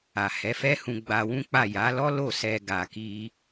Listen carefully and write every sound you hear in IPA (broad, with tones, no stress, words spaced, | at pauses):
a˨hɛ˨˦fɛ˦hũ˧ ɡ͡ba˧wũ˦k͡pa˦˨ ja˨˦lɔ˦ lo˦˨sɛ˧ ɡa˧ki˦